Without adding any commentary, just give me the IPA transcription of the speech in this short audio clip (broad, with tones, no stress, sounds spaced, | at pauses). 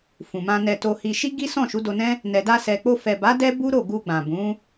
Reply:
f ũ˨ m ã˧ n ɛ˧ t o˧ h i˧ ʃ i˦ ɡ i˦ s ɔ̃˦˨ ʃ u˨˦ d o˧ n ɛ̃˦ | n ɛ˨ d a˧ s ɛ˨ k͡p o˧ f ɛ˨ b a˨˦ d ɛ˦ b u˦ ɾ o˦˨ ɡ u˧ ɡ͡b ã˨ b ũ˨˦